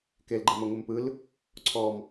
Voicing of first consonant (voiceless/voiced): voiceless